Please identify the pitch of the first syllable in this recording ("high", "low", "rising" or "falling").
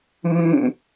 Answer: falling